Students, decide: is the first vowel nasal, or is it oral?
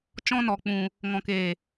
nasal